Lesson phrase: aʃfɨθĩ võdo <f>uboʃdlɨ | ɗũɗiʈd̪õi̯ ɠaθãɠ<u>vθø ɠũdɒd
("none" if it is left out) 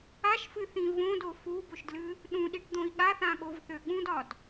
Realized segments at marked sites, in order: f, o

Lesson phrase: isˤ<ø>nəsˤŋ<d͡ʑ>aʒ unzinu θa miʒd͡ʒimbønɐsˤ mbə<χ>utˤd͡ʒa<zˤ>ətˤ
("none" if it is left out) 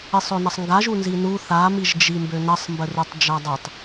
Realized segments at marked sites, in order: ø, ɡ, r, dˤ

